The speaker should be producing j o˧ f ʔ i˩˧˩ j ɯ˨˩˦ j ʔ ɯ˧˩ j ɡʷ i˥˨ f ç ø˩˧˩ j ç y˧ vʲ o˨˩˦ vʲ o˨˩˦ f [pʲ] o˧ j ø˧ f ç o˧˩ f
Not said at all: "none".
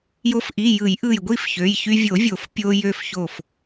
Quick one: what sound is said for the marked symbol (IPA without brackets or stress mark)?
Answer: pʲ